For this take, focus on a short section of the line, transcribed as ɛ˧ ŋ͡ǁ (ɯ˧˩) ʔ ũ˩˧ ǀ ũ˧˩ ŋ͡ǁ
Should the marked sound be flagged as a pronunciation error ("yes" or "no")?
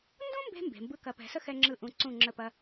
no